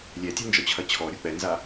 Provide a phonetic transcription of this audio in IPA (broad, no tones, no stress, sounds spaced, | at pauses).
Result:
lʲ ɛ tʲ u n d͡ʒ ɔ t͡ɕʰ ɐ t͡ɕʰ ɔ ɾʲ u k͡p ɛ n z a